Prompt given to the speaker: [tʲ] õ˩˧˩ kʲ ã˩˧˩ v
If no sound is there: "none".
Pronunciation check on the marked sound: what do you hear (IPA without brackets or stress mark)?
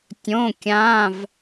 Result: tʲ